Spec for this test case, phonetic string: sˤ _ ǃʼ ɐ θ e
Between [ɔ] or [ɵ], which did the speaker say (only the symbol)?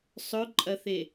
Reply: ɵ